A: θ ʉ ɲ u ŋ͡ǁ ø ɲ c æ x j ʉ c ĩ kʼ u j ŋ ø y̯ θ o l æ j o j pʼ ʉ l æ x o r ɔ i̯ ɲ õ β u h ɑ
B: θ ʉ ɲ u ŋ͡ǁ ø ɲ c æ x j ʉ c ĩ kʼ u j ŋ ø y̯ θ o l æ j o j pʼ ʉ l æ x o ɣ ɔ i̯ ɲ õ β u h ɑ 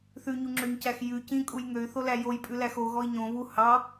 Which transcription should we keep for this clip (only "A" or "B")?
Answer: B